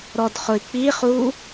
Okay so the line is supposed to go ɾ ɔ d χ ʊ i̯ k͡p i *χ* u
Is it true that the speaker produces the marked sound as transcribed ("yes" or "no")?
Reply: yes